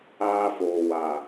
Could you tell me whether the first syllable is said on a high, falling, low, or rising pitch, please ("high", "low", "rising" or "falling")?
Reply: high